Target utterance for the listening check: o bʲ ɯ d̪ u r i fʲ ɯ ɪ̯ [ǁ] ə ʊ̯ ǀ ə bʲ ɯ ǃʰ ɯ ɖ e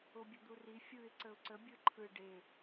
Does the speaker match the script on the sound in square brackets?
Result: no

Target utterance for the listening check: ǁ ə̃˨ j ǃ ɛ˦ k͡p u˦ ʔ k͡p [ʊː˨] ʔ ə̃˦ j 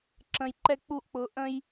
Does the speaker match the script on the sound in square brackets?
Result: yes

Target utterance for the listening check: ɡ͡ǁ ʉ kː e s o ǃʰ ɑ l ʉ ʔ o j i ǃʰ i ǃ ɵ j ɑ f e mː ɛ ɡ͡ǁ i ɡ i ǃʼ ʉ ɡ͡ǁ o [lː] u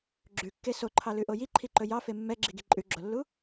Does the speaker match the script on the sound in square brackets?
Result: yes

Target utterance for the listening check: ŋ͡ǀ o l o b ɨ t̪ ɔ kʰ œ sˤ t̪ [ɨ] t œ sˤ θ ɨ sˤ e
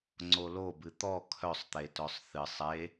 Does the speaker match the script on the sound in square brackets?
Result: no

